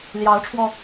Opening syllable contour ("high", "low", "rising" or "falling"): rising